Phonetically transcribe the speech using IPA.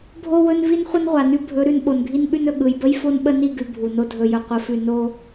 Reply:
bʱ o˦ w ɵ˦ n v i˦ n χʷ ə˦ n ʁʷ a˨ n ʉ˦ bʱ ɵ˨˦ ɾ ʉ˨ n ɓ o˨ n ɡʱ i˦ n ɓ ʉ˦ n ɵ˨ ɠ ɯ˨ j b ə˦ j f o˦ n ɓ ə˦ n i˦˨ ɡ ʉ˨ bʱ u˨ n o˦ dʱ ɵ˨ j ɵ˨ qʷ ə˨˦ f ʉ˨ n o˦

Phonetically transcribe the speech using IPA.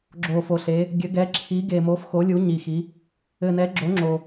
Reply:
ɡ͡ǁ o˨˩ f o˨˩ ɬ e˨˦ | ɡʲ ɘ˨˦ ɡ ɛ˨˦ ǁʰ i˨˦ ɡ e˨˩ m o˨˦ f x o˨˦ lʲ u˨˦ ɲ i˨˩ x i˨˦ | ɘ˨˩ n ɛ˨˦ ɡ͡ǁ o˨˦ ŋ͡ǁ o˨˩

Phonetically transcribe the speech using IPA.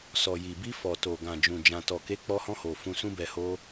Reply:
s ɔ˨ j i˨ b i˧ f ɔ˨ t o˨ ɡ ã˨ d͡ʒ ũ˨ d͡ʒ ã˨ t ɔ˨ k e˨˦ k͡p ɔ˧ h ɔ̃˧ h o˨ f ũ˧ s ũ˦ b ɛ˧ h o˧

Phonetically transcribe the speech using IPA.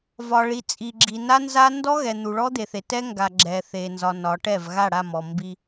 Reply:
v ɒ˨ ɭ i˨ t͡sʼ i˨ ɡ͡ǁ i˨ n a˦ n z a˦ n d ɔ˦ ɣ ɛ˨ n̪ u˨ ɭ ɔ˦ d̪ e˨ θ e˨ t ɛ˦ ŋ ɡ a˨ ɡ͡ǁ ɛ˨ θ e˨ n z ɒ˨ n ɒ˨˦ ʈ ɛ˦˨ v ɣ a˦˨ ɽ a˦˨ m ɔ˨ m b i˦

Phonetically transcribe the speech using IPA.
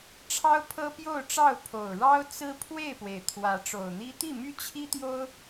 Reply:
ʈ͡ʂʰ ɑ˦ ʊ̯ pʰ ɤ˦ p j o˥˨ ʊ̯ ʈ͡ʂ ɑ˥˨ ʊ̯ pʰ o˨˩ ʊ̯ ɻ ɑ˦ ʊ̯ t͡s ɹ̩˦ pʰ w e˥˨ ɪ̯ p w e˩ ɪ̯ t̪ʰ w ä˨˦ ʈ͡ʂ o˨˩ ʊ̯ n̪ i˦ t̪ i˥˨ m y˦ t͡ɕʰ i˦ t̪ j o˦ ʊ̯

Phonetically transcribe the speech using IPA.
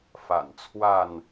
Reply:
f a̰˨˩ n t͡sʰ w a˥˨ n

